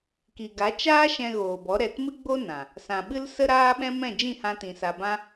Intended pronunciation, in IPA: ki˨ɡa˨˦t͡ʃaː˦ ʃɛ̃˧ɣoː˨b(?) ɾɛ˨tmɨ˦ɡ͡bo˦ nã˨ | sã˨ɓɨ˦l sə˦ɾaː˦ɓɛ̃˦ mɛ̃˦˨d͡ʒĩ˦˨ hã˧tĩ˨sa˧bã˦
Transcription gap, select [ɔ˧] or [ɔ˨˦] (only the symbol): ɔ˨˦